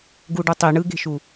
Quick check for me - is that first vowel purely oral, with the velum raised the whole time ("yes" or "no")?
yes